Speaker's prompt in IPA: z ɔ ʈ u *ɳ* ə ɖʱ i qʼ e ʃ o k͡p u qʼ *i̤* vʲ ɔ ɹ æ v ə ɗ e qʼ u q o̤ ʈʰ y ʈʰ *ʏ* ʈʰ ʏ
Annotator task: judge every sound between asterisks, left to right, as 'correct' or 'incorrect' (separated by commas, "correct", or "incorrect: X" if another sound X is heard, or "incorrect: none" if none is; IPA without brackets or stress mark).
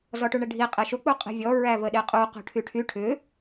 correct, incorrect: e̤, incorrect: y